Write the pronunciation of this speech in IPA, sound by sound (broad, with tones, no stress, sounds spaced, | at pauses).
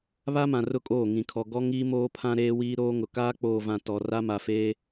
β a˦ m ã˨ r ʊ˦˨ kʼ oː˦˨ ŋ ĩ˨ kʰ ɔ˨ ɡ ɔ˦ ŋ iː˦ m oː˦ pʰ ã˦ ɾ eː˦ w iː˦ ɾ oː˦ ŋ ʊ˨ k aː˦ k͡p oː˨ v ã˨ t ɔ˨ r a˦ m a˨ f eː˦